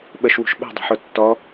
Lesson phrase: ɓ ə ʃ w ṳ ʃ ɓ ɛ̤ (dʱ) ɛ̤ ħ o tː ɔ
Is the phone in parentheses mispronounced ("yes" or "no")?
yes